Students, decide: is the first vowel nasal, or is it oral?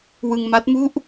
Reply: oral